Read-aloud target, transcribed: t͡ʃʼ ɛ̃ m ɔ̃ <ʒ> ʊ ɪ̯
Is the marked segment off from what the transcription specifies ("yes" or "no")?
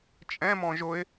no